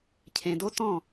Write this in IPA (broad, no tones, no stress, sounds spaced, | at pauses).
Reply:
cʰ ẽ d o t ɔ̃